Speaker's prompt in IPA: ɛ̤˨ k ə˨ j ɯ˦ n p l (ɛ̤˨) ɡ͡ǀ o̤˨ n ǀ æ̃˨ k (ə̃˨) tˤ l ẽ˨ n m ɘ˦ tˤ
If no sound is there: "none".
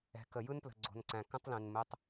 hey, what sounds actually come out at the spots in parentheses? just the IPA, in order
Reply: ə̤˨, ə̃˦

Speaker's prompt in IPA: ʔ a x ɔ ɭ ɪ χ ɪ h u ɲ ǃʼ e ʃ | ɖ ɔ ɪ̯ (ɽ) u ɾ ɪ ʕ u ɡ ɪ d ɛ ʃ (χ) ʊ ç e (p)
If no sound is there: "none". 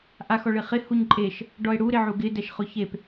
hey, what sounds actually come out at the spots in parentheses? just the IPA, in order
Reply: ɽ, χ, p

